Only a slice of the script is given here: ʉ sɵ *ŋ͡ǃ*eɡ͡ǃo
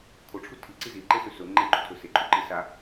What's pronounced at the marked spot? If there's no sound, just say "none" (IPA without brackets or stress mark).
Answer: ŋ͡ǃ